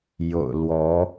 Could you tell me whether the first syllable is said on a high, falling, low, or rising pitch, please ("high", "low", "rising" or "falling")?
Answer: low